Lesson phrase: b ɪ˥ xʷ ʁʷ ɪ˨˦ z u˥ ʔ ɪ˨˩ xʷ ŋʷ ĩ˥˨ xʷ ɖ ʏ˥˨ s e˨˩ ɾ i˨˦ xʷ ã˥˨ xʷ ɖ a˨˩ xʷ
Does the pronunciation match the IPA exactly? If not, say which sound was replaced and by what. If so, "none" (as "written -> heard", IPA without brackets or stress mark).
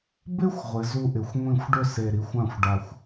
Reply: none